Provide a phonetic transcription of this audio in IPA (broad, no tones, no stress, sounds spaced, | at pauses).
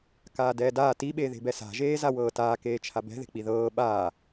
k aː d ɛː d aː t i ɓ e ð e̤ b ɛ s a̤ ʒ eː z a w ɤː t aː k eː t͡ʃʰ a b ɛ̤ ð e̤ k͡p i ð ɤː ɓ aː